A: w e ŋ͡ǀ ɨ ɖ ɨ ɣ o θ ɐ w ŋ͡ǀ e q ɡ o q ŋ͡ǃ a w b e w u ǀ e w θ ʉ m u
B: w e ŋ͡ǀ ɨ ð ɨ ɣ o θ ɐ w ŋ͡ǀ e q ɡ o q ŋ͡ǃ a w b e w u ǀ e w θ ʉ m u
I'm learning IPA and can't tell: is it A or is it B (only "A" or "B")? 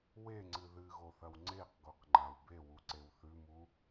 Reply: B